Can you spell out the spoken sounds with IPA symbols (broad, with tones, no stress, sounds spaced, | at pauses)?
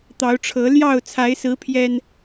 t̪ ɑ˨˦ ʊ̯ ʈ͡ʂʰ ɤ˨˦ l j ɑ˥˨ ʊ̯ t͡sʰ a˨˦ ɪ̯ s ɹ̩˨˦ pʰ j ɛ˨˩ n